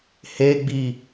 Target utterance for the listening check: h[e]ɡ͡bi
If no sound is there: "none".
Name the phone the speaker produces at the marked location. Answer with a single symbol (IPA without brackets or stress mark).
e